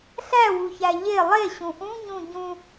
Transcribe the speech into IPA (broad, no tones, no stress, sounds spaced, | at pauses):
ɬ æ w u ç æ ʎ e lˠ e ɕ ũ ʔ ũ ɲ ũ ɟ ũ